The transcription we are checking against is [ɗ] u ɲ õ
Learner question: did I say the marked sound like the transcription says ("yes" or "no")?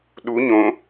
yes